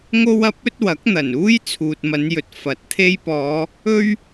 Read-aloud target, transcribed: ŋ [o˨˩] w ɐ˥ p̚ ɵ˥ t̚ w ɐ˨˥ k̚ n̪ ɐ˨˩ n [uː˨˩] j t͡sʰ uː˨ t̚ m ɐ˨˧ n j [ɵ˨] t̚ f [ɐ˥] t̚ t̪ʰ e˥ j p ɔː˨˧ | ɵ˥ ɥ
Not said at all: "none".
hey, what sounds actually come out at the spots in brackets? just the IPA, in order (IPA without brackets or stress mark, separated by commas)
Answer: o˥, uː˥, ɵ˨, ɐ˨˥